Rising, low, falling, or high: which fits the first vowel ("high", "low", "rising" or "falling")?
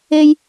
high